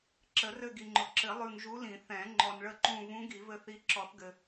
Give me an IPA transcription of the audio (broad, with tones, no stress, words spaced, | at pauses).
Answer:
ǁə˨˩˦rɘ˦˨ɡi˨ŋ͡ǃʊ˨ ǁɘ˨˩˦lˠʉ˨ŋ ʒu˧˥lĩ˨˩˦ θɛ̃˨˩˦ ŋ͡ǃɔ˨nɭə˦˨ǃũ˦˨ vũ˧˥ ɡi˨˩˦vɘ˦˨θi˧˥ ǁɔ˨˩˦θɡɘ˨